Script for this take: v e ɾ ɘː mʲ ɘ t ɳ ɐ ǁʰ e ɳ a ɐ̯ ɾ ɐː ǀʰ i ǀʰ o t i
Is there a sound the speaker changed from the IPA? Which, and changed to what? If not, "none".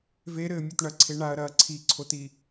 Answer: ǁʰ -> ǀʰ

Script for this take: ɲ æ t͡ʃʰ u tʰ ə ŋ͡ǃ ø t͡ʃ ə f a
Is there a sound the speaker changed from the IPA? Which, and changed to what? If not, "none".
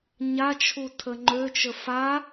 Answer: æ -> a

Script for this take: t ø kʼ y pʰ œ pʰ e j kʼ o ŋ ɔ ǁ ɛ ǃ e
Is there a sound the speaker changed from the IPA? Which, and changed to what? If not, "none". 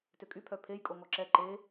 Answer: none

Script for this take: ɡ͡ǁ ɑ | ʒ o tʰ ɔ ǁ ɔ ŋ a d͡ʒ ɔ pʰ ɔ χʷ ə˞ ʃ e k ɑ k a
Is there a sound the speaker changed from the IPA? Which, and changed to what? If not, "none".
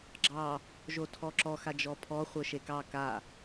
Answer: ŋ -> x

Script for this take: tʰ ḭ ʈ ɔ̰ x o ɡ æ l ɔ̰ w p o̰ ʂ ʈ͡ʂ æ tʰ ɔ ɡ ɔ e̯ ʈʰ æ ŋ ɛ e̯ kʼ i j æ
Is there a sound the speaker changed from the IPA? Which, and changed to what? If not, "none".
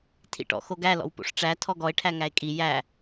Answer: ɛ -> æ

